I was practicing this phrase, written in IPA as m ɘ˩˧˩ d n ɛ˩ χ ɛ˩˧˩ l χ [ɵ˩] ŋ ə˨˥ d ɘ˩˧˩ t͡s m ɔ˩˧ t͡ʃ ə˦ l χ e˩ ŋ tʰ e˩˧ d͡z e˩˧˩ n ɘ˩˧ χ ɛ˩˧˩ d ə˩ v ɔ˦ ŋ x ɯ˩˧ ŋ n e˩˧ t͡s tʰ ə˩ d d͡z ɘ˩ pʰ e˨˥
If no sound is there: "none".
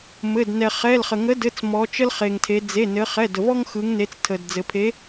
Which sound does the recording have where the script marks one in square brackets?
ə˩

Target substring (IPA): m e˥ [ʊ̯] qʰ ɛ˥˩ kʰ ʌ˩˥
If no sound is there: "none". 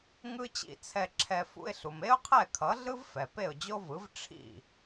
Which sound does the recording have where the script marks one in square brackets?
ʊ̯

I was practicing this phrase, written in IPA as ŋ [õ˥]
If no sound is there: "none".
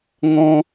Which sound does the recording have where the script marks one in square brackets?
ɔ̃˥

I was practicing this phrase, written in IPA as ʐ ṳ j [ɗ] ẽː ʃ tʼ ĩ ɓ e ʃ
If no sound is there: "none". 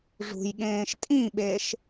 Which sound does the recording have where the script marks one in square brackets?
ɠ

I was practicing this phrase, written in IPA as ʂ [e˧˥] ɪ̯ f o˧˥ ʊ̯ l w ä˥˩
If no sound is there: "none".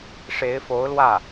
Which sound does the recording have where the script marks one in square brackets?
e˧˥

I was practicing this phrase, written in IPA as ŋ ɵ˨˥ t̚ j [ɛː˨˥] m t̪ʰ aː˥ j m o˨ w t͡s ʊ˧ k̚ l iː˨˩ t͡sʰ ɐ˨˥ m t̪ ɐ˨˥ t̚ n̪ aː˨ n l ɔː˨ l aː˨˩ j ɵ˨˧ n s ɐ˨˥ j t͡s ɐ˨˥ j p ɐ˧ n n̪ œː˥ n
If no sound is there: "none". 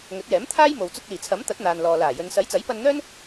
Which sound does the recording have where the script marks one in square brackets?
ɛː˨˥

